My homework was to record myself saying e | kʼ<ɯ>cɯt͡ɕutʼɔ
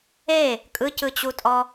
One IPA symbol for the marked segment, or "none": ɯ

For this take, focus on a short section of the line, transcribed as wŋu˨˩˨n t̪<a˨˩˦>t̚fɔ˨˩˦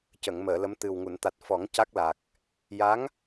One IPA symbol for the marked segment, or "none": a˨˩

